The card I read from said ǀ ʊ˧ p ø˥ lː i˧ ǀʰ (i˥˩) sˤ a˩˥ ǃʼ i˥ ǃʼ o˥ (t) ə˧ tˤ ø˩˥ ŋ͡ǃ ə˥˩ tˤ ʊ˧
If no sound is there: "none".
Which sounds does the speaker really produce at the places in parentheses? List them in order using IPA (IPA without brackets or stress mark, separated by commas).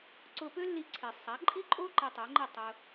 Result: i˩, ǃ